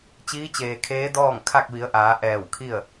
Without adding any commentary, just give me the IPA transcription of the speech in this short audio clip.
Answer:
t͡ɕ iː˧˥ t͡ɕ eː˩ kʰ eː˧˥ d ɔː˥˨ ŋ kʰ a˥˨ k̚ ʋ i˩˧ ə̯ ʔ aː˩˧ ʔ ɛː˧˩ w kʰ i˥˨ ə̯

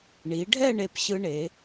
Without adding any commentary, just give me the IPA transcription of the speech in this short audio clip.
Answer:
ɳ i˩˧ ɖʱ ɛ˥˧ ɳ e˧˩ p ɕ ɯ˧ ɳ e˩˧

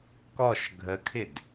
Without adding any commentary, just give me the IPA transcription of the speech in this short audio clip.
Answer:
k ɔ ʃ ɡʱ ə kʰ ɪ d

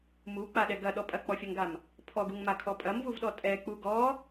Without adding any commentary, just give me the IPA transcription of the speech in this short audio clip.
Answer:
m u k͡p a ɗ ɛ ɡ ɐ ɗ ɔ pʼ ɐ k͡p ɔ fʲ ɐ ŋ ɡ a m | pʰ ɔ ɡ u ŋ m a kʰ ɔ pʼ ɐ m v u v ɗ ɔ tʼ ɛ k͡p u ɡ ɔ

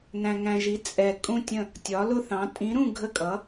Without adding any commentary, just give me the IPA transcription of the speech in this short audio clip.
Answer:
n æ̃˧ ŋ æ̃˧ ʒ i˨˥ t͡sʼ ɛ˧ kʼ ũ˥˨ tʲ ə̃˥˨ | tʲ ɒ˨˥ l ʊ˥˨ θ ɑ̃˨˥ tʼ ĩ˨˥ ɾ ũ˥˨ ɡʱ ə˥˨ kʼ ʌ˨˥

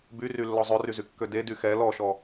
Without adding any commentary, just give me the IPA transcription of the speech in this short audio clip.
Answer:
b y r y lː ɔ zˤ ɵ r y z y kː ø d e d y x ɛ l ɔ ʃ ɔ

